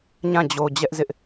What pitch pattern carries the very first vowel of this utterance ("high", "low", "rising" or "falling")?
falling